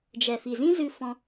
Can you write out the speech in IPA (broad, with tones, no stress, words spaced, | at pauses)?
d͡ʒɛ˨fi˨zĩ˦zɨ˧ fɔ̃˦